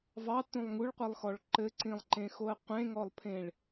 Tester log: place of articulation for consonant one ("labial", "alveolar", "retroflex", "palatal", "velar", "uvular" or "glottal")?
labial